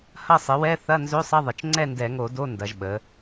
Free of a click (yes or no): no